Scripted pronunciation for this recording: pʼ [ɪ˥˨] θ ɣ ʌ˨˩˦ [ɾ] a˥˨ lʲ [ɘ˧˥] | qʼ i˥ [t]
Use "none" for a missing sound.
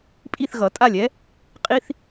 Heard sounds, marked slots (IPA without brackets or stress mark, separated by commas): i˥˨, tʼ, ɛ˧˥, θ